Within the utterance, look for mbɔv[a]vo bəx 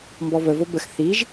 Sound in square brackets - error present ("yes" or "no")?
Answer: yes